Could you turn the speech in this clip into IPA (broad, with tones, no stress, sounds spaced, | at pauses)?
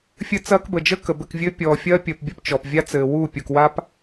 fʲ ɘ˦ t͡s ɐː˦ k b ə˨ d͡ʒ ə˦ k ə˨ b ɘ˦˨ k vʲ ɘː˦ pʲ ɔː˨ fʲ ɐː˦ pʲ əː˨ p bʲ ə˦˨ p t͡ʃ ɔ˨ p vʲ a˦ t͡s ɘː˨ w u˦˨ pʲ u˨ k w a˦ p